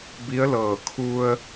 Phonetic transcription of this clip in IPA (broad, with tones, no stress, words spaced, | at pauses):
bi˧˥ə̯lɤː˧˩ kʰu˧ə̯